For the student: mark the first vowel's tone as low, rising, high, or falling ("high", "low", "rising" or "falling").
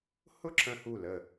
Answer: falling